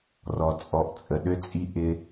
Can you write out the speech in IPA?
rɔ˨t͡sʼɔ˨ʔt͡sʼə˨ ɗø˧t͡sʼi˧ ʔɪ˦

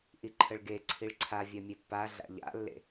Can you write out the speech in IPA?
ʔiǃʰəɭɡe ǀʰiɭǀʰa vʲœmʲepːa ɮa̰ʎa̰lːḛ

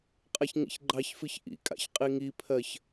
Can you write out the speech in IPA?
qʼaçŋḭçɡ͡ǃɑçfɨç ʔḭkʼa̰ç qʼiŋipʰɜç

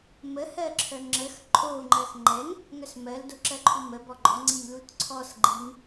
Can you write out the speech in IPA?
mə hɜǁʰœŋ͡ǁəx ǃʼo ŋ͡ǃɜxŋ͡ǃɛŋ | ŋœsmɜl doǁɜǃʰumə bɔɡ͡ǃɔ ŋ͡ǀimlutǀʰɔs ɡ͡ǃiŋ

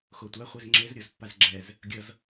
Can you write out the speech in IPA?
xotʷaχʷez ŋ͡ǁezɾʲozpːaz ɡ͡ǁɛz | ɡʲʌz

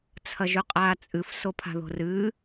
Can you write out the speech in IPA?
t͡sʰɐʒʉqʼaːt͡sʼɨf sopʰa̤ðo̤rɨː

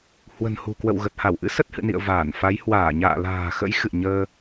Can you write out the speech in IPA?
hwə̤˨˩nhṳ˨˩kwə̰˧˨w ɣə˨˩t̚ha˧˩wʔɨ̰˧˥ sə˦˥t̚hɨ̰˧˨nḭ˧˨ə̯ vaː˧˩n fa˨˦j hwaː˧˩ɲa̰ː˧˨ la̤ː˨˩xə̰˧˥j xɨ̰˧˨ɲəː˧

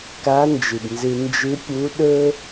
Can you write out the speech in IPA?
ka˧˥ nd͡ʒɨ˩bnzɨ˧ nd͡ʒɨ˧˥pʲu˧˥ɗɵ˥

